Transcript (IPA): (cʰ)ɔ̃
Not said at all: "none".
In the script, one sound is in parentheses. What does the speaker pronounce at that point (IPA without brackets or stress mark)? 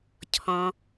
cʰ